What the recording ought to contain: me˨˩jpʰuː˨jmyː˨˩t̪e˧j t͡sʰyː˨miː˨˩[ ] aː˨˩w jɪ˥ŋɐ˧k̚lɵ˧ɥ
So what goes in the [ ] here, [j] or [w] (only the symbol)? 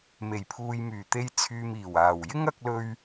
w